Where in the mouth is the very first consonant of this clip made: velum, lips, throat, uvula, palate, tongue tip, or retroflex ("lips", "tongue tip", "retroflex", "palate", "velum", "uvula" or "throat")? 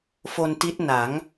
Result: lips